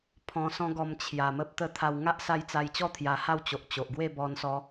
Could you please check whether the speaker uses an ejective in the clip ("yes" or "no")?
no